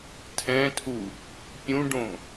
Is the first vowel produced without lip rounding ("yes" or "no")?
yes